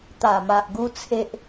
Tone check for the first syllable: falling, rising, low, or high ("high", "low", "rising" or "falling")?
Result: low